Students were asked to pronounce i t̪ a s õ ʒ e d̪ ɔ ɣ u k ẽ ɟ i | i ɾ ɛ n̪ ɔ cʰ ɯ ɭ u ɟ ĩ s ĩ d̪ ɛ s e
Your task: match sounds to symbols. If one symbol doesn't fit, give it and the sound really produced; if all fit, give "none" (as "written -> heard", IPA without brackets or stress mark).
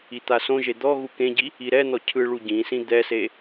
none